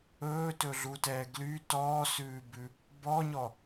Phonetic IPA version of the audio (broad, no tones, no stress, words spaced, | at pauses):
ɵːtɵɮutɛː ɡly tɔːsʉːbʉ | bɔɲɔ